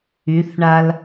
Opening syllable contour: rising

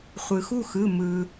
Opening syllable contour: low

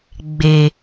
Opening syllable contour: low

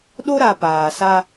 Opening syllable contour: high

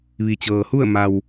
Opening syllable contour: low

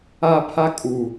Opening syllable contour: high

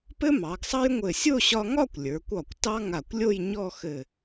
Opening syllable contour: high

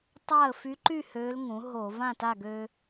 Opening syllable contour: falling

